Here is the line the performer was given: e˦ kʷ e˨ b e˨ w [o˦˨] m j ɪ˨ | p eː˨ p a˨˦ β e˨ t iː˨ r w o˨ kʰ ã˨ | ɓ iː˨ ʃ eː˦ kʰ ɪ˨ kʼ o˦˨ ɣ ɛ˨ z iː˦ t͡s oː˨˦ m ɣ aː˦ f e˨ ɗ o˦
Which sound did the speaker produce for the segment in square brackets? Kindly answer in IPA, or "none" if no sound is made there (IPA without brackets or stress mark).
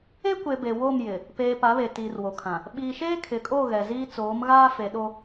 o˦˨